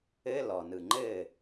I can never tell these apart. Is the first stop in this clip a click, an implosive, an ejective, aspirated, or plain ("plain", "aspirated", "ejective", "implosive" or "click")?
click